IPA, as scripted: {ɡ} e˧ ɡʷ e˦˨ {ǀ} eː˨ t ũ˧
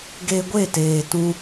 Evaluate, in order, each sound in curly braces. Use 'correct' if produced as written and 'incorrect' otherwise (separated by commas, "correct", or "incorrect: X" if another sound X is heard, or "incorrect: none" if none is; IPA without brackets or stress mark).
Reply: correct, incorrect: t